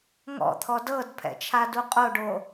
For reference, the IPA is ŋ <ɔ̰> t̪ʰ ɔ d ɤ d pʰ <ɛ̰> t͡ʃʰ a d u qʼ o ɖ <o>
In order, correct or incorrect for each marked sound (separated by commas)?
correct, correct, correct